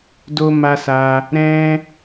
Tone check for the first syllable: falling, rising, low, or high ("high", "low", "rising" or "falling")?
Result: high